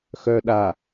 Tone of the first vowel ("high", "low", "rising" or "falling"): low